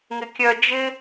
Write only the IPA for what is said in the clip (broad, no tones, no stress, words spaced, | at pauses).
ŋɪkʲœ d͡ʒɪ